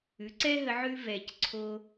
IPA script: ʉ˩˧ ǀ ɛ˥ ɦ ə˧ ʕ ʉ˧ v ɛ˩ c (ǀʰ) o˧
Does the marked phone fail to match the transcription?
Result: no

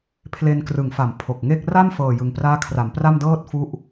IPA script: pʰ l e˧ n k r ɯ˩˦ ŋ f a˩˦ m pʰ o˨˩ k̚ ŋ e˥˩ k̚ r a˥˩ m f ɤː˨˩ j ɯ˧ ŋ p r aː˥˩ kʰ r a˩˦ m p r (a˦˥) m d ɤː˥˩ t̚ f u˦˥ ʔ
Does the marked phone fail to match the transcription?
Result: yes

